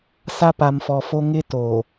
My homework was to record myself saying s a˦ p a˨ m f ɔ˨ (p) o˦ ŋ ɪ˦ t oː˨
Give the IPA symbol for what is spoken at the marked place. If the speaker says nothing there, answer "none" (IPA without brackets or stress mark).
f